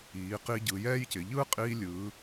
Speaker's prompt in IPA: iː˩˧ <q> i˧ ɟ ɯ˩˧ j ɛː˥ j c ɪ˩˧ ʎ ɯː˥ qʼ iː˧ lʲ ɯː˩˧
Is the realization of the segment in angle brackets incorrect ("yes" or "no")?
no